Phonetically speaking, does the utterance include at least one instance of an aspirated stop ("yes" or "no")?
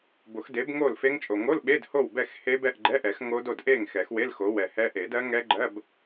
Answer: no